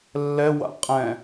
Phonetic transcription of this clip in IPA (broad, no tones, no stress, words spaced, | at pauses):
lːɛwa̰ qʼɛ̃